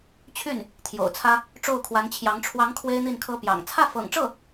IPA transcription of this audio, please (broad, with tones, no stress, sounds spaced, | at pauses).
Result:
t͡ɕʰ y˥˩ n | t̪ʰ j o̰˨˩ ʊ̯ t͡sʰ ä˥ | ʈ͡ʂ o˥˩ ʊ̯ kʰ w a˧˥ n t͡ɕʰ j ɑ˧˥ ŋ ʈ͡ʂʰ w ɑ˧˥ ŋ kʰ w e˥ ɪ̯ n̪ i˥˩ n kʰ ɤ˥ p j ɑ̰˨˩ ŋ t͡sʰ ä˥˩ f ɤ̰˨˩ ŋ ʈ͡ʂ ɤ˥˩